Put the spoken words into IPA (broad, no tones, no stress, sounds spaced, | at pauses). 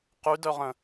q y d œ ʁ ə̃